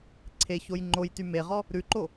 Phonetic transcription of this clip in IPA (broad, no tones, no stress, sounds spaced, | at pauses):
ǀʰ e ç o j ŋ͡ǃ o j t y m e ʁ ɔ | ɾ ʉ ǃ o